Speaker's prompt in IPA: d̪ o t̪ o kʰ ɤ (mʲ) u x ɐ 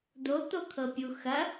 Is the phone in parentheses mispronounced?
yes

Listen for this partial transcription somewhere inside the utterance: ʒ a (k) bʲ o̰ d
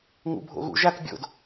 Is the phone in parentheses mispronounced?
no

